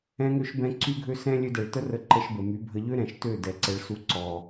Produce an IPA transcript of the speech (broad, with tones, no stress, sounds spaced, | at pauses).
ɛ̃˧ ŋ ø˧ ʃ b ɛ̃˧ ǀ y˦ ɡʱ ø˦ s ɛ̃˦ lʲ ø˧ d ɛ˨ ɭ t ə˦ r ə˧ ǃ ə˧ ʃ b ə˨ m y˨˦ bʱ ə˧ ʎ ø˦ ɾ ɛ̃˨ ʃ t ø˦˨ d ɛ˨˦ ǀ ɛ˧ ɭ s u˧ ǀ ɔ˨